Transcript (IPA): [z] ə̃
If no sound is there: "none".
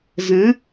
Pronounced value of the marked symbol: z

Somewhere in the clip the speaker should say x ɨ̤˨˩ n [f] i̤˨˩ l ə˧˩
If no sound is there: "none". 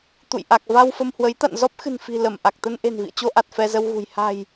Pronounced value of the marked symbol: f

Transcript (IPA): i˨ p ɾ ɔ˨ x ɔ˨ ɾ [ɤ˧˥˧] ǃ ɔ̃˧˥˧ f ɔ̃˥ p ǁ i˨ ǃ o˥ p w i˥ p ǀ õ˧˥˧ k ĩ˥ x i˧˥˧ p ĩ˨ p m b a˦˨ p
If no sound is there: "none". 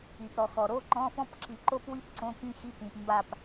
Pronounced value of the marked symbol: o˧˥˧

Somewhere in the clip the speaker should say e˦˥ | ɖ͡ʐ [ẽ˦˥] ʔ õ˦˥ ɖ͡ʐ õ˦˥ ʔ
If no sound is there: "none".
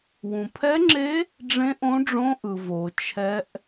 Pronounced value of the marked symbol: ẽ˦˥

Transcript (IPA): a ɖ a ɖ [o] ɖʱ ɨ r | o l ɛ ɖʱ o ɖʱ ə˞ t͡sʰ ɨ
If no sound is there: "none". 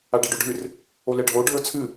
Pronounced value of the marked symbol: o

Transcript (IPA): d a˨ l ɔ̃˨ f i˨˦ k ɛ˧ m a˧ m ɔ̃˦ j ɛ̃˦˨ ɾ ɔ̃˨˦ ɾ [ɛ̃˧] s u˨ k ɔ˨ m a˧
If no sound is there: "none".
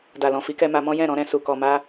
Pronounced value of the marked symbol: ɛ̃˧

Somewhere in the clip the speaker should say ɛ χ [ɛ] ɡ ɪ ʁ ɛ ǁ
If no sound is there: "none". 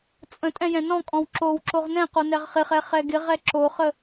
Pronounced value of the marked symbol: ɛ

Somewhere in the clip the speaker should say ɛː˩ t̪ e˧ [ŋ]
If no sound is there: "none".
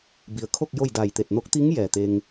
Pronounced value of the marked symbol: ŋ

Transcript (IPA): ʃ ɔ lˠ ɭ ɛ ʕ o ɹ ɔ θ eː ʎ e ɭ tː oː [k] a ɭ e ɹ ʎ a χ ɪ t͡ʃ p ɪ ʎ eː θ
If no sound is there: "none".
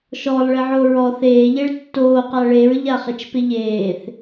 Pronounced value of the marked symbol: q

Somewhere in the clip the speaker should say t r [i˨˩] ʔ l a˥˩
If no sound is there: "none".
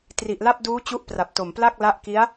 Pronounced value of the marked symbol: i˨˩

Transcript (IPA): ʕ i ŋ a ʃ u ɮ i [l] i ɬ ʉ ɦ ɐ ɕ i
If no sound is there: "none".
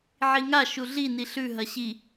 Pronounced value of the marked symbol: n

